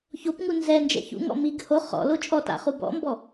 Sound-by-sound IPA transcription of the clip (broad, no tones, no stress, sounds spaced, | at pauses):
ç o p ŋ u n z ɛ n d͡ʒ ɛ̰ ç ṵ ŋ ɔ̰ m i ɡ h o χ ɔ̰ l o t͡ʃʼ ɔ t a̰ χ u b ɔ̰ m b ɔ